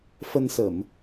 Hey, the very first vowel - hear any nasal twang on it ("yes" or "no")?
no